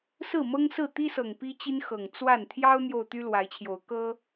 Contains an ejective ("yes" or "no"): no